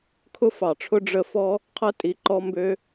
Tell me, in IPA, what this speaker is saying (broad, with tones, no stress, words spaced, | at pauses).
kʰʊ˥fɑ˩ʈ͡ʂʰʊ˥ ɖ͡ʐə˥ fɔ˥ | qʰɐ˥tʼi˩ǃɔ˦ mbø˦